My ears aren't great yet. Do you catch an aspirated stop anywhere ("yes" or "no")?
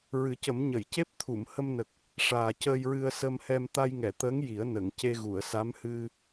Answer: yes